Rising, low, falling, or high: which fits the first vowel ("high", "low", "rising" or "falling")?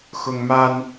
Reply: high